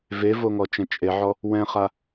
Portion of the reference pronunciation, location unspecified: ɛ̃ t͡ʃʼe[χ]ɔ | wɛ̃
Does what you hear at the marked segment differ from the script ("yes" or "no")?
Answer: yes